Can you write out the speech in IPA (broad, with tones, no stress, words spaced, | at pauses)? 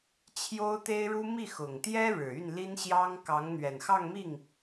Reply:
t͡ɕʰjo˥ʊ̯t̪e˥ɪ̯ɻu˥ mi˥˩xʊ˨˩ŋt̪jɛ˥ ɻɻ̩˨˩y˥˩nli˥nɕjɑ˥ŋ kɑ˧˥ŋn̪ɥɛ˨˩nxɑ˥˧ŋmi˥˩ŋ